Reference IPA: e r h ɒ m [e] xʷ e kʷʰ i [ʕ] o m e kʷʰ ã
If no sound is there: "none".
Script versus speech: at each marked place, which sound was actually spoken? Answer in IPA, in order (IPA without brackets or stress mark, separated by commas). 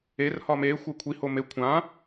e, h